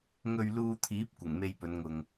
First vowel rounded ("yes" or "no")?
yes